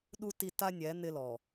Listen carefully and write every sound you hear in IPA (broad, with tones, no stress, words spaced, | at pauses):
ɗu˦ ti˦ ta˦nʲɛ˨˦ n̪ɪ˦lɔ˨